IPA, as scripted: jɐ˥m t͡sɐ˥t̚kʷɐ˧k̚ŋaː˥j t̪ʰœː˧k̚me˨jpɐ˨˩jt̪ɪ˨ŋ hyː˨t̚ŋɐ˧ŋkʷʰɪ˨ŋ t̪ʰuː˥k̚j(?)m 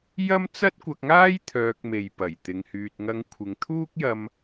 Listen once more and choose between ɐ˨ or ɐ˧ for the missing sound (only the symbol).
ɐ˧